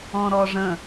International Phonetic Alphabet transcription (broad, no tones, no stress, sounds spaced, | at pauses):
ɔ̃ ɾ ɔ ʐ ə̃